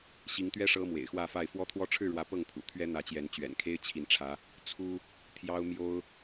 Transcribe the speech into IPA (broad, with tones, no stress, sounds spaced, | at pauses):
ɕ i˨˦ ŋ t̪ ɥ ɛ˦ ʂ ɤ˦ m w ḛ˨˩ ɪ̯ x w ä˥˨ f a˥˨ ɪ̯ f w ɔ˦ t̪ʰ w ɔ˦ ʈ͡ʂʰ ɻ̩˥˨ ɻ w ä˨˦ p ɤ˥˨ ŋ pʰ ṵ˨˩ t̪ʰ ɥ ɛ˦ n̪ ä˨˦ t͡ɕ j ɛ˨˦ n t͡ɕ ɥ ɛ̰˨˩ n kʰ e˦ ɪ̯ t͡ɕʰ i˨˦ n ʈ͡ʂʰ ä˨˦ | t͡sʰ u˦ | t̪ʰ j ɑ˦ ʊ̯ m j o˦ ʊ̯